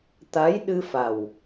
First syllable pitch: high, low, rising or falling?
rising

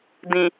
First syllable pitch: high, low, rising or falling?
low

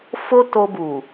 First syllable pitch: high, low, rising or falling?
high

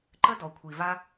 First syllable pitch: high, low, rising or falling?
high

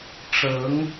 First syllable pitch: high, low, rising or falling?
rising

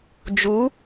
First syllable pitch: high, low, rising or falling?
rising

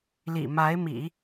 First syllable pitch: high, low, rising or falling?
low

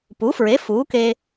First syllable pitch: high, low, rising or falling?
rising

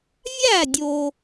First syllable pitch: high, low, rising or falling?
falling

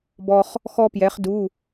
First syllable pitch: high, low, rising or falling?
high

